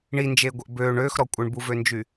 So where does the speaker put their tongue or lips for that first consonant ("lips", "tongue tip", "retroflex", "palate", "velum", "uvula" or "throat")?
retroflex